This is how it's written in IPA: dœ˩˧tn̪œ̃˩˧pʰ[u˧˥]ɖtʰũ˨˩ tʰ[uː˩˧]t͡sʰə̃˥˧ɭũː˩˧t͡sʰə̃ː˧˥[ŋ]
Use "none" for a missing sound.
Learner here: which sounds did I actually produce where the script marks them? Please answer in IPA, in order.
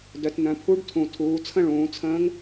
u˧˥, uː˩˧, ŋ

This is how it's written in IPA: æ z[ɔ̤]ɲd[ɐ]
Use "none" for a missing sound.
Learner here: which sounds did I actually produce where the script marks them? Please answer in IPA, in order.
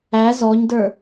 ɔ, ə˞

